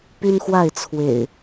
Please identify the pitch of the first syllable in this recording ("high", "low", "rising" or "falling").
high